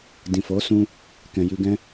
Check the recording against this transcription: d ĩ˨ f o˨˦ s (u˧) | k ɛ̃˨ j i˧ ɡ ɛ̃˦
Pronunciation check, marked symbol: incorrect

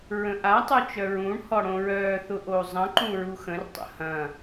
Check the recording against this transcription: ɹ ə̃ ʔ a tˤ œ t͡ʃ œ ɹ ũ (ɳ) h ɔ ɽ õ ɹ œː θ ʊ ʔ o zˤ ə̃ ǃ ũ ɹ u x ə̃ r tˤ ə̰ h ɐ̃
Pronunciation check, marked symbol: correct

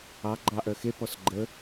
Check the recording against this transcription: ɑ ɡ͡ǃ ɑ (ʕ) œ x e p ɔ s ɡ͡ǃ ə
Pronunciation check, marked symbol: incorrect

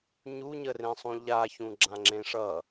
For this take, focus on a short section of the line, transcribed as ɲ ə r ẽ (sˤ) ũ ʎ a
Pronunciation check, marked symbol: correct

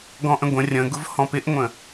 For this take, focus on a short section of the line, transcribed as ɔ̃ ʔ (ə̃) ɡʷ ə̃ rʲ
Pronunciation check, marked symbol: correct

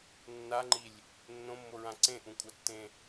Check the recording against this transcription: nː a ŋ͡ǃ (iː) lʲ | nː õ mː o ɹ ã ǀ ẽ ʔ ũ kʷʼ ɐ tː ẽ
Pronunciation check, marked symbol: incorrect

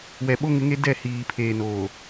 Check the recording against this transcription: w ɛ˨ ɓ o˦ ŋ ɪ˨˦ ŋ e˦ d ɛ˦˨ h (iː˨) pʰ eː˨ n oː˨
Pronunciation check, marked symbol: correct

